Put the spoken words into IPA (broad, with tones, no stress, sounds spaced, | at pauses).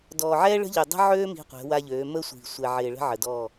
d ɔː˨ ʕ ɛː˦ ɭ ə̤˦ ʎ ø˨ dˤ ə̤˦ ʕ øː˦ m i̤˦ qʷ ɛ̤˨˦ w a˦ ʎ øː˨˦ m ə˦ sʷ i̤˨ sʷ ɛ˨ ʕ ɪː˨ ɭ ə̤˦ ʕ ə˨ d ɔ˦˨